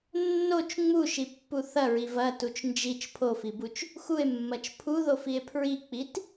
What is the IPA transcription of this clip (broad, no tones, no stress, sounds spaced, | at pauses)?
nː o t͡ʃ ŋ͡m u ʃ i pː u θ ɐ ɹ i v ɐ t u t͡ʃ n d͡ʒ i t͡ʃ pʰ o f i b u t͡ʃ | x u e̯ mː ɐ t͡ʃ pʰ u ð o f i e̯ pʰ ɹ i k͡p i t